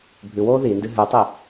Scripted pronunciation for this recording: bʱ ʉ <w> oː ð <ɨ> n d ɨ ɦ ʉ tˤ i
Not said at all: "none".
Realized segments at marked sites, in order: w, i

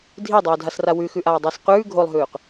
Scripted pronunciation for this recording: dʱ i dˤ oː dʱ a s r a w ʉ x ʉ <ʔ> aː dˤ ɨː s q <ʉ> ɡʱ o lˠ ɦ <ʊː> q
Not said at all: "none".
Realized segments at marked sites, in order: ʔ, ʉː, ʉː

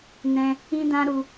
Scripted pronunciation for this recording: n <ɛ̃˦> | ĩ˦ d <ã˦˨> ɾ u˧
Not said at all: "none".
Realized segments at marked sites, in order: ɛ̃˦, ã˦

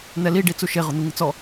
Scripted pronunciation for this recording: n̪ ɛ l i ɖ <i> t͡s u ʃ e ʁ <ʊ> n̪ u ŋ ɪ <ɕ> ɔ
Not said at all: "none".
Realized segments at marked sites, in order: i, ʊ, t͡s

